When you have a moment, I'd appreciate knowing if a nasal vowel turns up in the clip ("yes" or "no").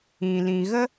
yes